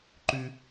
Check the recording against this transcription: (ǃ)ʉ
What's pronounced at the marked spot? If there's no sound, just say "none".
ǃ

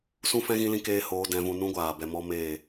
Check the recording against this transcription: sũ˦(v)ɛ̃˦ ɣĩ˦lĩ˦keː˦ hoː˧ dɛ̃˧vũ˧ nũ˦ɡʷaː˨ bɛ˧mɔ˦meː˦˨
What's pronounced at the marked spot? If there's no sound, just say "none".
f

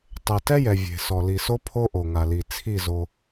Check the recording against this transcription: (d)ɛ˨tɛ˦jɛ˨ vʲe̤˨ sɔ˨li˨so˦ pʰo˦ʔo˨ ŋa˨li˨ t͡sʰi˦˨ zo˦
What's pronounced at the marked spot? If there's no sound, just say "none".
tˤ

